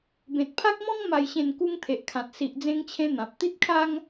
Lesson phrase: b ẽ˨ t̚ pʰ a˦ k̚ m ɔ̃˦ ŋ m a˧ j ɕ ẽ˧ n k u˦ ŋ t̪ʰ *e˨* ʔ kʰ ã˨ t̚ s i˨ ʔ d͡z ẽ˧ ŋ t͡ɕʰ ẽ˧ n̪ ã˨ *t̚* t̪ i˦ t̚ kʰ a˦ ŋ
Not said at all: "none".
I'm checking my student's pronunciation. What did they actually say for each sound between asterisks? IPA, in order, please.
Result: e˨, p̚

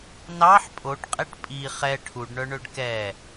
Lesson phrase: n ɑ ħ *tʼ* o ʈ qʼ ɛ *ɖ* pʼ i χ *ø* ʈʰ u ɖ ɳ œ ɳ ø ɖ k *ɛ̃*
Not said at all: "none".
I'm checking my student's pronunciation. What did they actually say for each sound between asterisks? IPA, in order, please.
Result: pʼ, ʈ, ɛ, ɛ

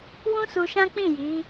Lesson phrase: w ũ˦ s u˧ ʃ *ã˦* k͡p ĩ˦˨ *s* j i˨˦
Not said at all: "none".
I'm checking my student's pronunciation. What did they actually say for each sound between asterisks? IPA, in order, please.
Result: ã˦, none

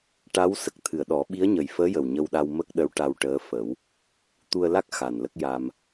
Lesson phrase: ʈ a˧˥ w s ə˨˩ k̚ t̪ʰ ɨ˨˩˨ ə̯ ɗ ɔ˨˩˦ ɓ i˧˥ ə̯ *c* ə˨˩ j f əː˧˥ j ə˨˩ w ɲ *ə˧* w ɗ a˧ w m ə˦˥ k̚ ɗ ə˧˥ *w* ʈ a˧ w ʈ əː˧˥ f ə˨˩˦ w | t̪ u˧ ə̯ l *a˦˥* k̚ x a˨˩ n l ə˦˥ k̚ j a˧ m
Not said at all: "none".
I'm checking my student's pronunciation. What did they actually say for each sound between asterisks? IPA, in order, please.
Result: ɲ, ə˧, w, a˦˥

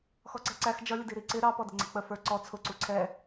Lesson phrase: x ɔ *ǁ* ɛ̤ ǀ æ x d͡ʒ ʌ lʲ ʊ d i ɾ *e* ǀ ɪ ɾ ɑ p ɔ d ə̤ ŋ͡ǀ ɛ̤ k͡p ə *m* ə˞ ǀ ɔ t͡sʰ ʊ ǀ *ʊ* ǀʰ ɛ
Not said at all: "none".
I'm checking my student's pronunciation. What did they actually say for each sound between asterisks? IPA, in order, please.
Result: ǀ, i, f, u

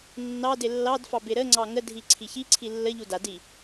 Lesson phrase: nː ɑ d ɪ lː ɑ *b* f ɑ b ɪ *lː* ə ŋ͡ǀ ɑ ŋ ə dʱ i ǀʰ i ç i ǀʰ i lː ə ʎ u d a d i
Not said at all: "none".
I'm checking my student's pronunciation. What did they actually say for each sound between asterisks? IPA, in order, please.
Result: d, ɾ

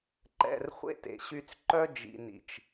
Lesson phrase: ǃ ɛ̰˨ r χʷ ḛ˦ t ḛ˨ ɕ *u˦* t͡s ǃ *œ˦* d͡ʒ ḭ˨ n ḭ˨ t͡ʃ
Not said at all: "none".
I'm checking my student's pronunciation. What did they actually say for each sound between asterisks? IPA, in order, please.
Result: y˦, œ˦

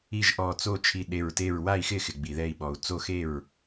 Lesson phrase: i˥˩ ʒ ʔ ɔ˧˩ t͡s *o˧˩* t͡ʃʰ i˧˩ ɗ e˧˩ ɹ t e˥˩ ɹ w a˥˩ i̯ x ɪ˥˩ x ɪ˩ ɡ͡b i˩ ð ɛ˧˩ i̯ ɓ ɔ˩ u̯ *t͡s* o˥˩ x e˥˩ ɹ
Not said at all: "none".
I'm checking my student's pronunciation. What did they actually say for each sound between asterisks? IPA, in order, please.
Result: o˥˩, t͡s

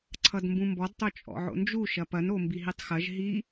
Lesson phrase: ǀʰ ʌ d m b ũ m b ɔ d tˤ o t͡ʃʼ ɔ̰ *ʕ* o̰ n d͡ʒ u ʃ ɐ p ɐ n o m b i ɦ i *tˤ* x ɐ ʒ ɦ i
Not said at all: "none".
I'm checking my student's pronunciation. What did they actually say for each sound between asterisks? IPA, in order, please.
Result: ʕ, tˤ

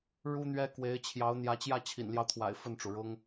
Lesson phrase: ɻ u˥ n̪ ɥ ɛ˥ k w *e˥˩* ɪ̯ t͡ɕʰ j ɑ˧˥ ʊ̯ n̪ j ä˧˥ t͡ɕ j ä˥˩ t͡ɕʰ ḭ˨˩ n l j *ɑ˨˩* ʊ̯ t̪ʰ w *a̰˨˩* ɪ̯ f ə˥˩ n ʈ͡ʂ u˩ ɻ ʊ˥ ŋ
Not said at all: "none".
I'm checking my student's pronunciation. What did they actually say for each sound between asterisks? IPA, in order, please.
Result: e˧˥, ɑ˦, a̰˨˩

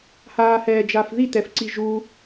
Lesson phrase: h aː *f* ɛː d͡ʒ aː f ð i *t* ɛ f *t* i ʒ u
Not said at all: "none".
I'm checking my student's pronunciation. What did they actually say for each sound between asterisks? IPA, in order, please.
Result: h, t, ǀ

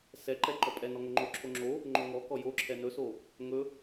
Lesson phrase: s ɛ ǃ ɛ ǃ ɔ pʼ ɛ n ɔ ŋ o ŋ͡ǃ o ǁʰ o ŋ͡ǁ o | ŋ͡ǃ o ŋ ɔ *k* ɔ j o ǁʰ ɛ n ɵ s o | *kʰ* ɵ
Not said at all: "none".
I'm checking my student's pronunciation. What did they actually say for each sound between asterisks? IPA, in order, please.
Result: k, ŋ

